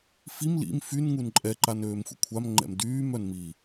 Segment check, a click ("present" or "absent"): present